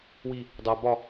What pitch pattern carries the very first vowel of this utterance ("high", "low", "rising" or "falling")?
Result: high